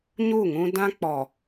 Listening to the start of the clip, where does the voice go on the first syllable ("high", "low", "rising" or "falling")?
falling